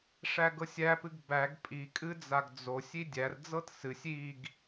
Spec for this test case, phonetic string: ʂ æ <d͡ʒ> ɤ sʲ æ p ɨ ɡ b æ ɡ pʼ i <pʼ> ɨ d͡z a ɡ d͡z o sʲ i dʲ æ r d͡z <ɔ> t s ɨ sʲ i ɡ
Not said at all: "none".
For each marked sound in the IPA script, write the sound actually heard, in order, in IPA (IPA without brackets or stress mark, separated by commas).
ɡ, kʼ, ɤ